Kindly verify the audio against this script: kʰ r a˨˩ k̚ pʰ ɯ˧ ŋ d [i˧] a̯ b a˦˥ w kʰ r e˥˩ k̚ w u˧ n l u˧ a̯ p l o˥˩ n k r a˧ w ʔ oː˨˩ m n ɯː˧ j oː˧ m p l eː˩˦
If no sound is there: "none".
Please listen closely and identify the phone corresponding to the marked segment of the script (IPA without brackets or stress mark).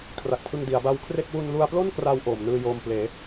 i˩˦